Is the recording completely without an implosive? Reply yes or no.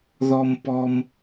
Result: yes